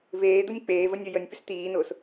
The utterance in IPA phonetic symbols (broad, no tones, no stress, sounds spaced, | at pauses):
v eː d̪ ʊ nʲ k͡p eː v ə nʲ ə j ə nʲ p ʏ s t̪ iː n ʊː s